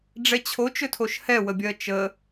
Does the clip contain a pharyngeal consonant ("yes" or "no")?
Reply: no